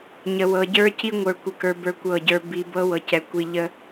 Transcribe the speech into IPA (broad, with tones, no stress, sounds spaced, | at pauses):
ɲ ə˨ w ɤ˨ ɟ ə˞˦ c i˦ ŋʷ ə˞˨ kʷ ə˨ k ə˞˨ b ə˞˦ kʷ ɤ˦˨ ɟ ə˞˦ b i˨ b ɤ˦ w ɤ˨ c ɛ˨ kʷ i˨ ʎ ə˦